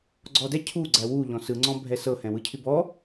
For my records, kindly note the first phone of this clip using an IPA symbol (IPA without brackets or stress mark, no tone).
ɡ͡ǀ